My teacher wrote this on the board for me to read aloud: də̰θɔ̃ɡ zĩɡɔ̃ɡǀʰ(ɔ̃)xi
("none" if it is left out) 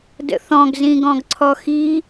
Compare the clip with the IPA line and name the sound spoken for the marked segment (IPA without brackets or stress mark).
ɔ